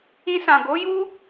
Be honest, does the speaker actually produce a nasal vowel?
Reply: yes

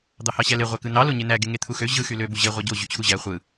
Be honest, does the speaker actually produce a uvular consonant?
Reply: yes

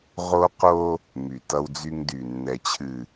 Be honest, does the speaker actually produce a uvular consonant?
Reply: yes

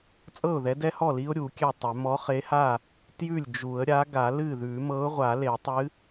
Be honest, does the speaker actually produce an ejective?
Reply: yes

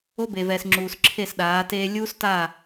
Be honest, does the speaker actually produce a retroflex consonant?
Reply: no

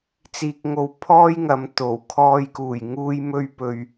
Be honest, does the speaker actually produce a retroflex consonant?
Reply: no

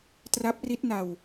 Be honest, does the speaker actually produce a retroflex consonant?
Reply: no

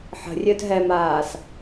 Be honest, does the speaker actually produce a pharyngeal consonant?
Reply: yes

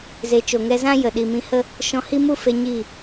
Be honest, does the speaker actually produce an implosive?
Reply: yes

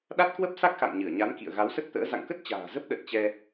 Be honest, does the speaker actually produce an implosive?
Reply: yes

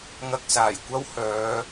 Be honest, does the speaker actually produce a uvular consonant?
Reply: no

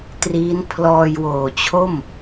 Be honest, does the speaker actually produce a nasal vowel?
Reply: no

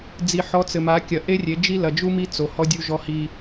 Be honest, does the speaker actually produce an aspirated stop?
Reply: no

